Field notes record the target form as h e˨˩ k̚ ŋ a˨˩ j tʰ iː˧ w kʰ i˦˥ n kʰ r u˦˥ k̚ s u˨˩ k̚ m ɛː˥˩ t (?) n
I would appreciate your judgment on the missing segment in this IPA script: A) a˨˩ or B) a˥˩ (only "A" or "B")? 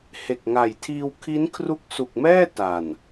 A